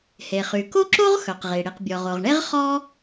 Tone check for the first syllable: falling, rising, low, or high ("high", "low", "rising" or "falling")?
low